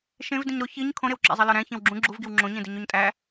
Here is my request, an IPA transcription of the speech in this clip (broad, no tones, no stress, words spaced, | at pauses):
ʃẽv dĩɲɾo çiɲ kʰõɾewǁæ̰zˤe lɒɾæ̃ çẽwɡ͡ǁũ ɡ͡ǁuvɡiw ŋ͡ǁõɲẽdiɲ oɲtʼæ